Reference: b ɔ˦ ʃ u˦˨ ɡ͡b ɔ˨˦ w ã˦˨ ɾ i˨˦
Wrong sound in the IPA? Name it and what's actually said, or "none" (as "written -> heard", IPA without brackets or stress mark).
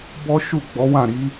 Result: none